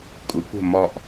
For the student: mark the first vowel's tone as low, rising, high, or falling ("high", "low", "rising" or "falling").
rising